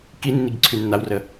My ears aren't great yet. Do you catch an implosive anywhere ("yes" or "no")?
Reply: no